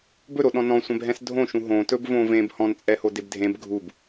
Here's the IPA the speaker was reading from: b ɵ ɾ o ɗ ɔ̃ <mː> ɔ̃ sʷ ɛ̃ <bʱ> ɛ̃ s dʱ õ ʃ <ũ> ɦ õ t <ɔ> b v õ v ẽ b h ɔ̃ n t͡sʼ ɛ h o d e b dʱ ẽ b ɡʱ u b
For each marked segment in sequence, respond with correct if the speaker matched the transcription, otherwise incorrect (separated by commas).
incorrect, correct, correct, incorrect